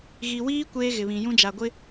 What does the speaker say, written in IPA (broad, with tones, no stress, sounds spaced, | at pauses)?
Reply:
ɣ i˨ w iː˦ kʷ eː˦ ɣ ɪ˨ β ĩ˨ j ũ˦ d͡ʒ a˨ ɡʷ ɪ˦